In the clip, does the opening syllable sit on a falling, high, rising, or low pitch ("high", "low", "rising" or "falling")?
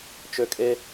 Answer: high